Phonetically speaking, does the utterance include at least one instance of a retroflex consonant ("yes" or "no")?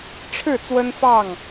yes